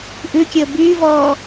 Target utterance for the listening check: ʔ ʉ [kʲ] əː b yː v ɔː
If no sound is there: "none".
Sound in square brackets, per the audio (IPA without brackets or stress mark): kʲ